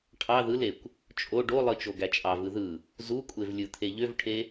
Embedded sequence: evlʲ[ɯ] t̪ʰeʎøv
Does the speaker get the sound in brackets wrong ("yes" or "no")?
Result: no